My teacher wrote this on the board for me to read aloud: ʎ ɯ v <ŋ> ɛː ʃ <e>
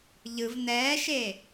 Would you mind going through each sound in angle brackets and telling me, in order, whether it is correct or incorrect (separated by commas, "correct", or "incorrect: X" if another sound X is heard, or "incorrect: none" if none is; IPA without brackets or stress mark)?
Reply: incorrect: n, correct